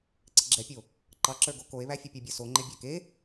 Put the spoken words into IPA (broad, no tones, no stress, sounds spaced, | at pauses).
ǀ ɘ ɡ͡ǁ ɛ pʲ o | ǃ ɑ ǁ ə˞ ɡ o k o e̯ β æ fʲ ɘ pʲ a bʲ ə˞ s o ŋ͡ǃ e bʲ æ k e